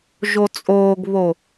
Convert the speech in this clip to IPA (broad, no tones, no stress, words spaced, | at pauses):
ʒot͡sʼoːɡβo